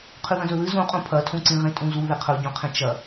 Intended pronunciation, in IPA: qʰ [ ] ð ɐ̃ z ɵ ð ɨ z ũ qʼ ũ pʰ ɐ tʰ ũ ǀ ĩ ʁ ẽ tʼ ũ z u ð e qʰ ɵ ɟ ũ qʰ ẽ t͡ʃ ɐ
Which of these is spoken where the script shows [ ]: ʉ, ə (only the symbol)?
ʉ